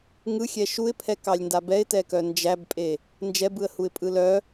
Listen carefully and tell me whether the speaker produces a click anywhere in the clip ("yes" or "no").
no